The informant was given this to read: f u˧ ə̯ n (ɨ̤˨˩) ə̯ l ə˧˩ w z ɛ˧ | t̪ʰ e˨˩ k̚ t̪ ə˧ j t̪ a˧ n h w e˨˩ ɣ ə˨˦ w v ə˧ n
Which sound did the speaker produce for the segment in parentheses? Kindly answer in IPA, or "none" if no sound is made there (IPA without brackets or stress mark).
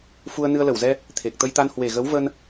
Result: ɨ˧